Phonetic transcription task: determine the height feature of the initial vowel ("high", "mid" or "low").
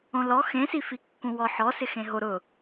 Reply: mid